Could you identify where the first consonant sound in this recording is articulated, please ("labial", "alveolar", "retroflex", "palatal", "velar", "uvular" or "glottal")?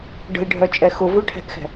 retroflex